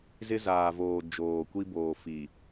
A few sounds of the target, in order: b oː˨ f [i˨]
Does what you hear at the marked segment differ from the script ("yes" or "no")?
no